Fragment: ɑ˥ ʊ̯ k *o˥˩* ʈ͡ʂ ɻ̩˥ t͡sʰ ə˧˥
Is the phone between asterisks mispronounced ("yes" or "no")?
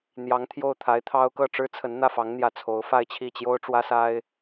yes